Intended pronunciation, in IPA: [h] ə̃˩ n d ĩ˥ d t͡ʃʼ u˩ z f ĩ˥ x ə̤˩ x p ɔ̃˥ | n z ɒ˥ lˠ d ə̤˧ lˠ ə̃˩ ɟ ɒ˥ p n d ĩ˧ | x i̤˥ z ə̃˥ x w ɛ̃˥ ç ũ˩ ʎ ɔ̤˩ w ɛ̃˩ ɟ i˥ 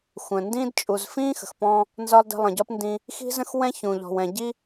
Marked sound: incorrect: xʷ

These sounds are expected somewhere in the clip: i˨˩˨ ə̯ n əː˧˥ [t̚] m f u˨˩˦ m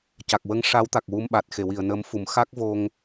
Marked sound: incorrect: none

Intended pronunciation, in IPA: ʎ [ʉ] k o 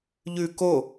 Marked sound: correct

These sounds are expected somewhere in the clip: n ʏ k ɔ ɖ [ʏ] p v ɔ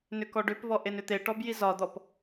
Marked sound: correct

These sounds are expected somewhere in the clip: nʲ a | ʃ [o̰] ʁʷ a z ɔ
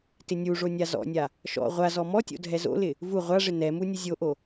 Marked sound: incorrect: ɔ̰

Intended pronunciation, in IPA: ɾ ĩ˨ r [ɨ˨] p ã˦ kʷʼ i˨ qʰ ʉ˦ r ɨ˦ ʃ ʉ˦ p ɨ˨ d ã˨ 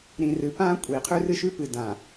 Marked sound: correct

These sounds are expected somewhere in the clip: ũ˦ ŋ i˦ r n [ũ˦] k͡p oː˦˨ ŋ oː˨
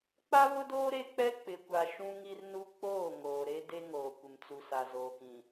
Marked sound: incorrect: u˦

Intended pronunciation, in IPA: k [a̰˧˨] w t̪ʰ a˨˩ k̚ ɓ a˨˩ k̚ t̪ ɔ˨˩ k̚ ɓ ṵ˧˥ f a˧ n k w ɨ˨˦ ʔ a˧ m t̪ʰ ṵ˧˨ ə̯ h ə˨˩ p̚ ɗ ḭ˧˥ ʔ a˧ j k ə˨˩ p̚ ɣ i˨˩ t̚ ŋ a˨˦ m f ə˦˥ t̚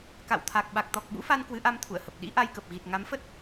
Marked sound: correct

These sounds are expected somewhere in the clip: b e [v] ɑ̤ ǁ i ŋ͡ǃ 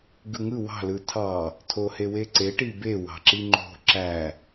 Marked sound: incorrect: w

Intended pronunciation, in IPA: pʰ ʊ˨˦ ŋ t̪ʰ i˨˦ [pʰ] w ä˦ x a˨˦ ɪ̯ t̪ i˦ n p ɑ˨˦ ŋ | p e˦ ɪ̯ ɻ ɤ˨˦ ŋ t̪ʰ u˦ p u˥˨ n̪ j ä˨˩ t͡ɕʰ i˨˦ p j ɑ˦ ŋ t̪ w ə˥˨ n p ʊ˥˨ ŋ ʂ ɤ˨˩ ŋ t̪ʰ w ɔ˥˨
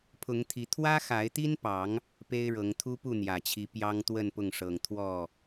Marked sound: incorrect: t̪ʰ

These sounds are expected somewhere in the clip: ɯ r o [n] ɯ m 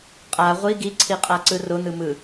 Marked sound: correct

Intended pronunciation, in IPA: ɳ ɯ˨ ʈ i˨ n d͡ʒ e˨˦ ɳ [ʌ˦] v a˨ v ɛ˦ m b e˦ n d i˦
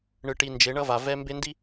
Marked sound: correct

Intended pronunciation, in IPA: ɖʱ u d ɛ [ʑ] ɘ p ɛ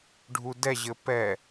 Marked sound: correct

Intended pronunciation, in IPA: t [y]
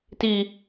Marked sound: incorrect: i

